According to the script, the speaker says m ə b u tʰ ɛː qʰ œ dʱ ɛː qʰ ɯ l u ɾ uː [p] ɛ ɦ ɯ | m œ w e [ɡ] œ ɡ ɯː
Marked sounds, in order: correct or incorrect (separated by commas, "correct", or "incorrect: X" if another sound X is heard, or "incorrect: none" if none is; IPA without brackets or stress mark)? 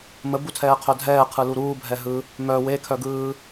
incorrect: bʱ, incorrect: kʰ